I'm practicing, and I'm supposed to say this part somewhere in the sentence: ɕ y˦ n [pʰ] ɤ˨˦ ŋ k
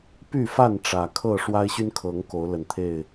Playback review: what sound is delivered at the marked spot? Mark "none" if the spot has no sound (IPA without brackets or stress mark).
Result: kʰ